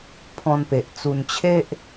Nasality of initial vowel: nasal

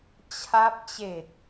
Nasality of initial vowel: oral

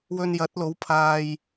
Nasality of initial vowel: oral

